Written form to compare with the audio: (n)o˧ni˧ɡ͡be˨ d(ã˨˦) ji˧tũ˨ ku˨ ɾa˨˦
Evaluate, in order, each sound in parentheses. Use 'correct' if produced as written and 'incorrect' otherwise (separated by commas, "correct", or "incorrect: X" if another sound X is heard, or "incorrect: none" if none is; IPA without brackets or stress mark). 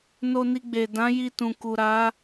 correct, correct